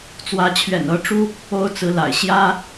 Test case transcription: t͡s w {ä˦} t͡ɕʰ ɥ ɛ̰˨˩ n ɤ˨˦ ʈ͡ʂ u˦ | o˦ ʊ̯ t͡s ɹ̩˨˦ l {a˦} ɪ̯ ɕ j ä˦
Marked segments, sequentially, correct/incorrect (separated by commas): incorrect, incorrect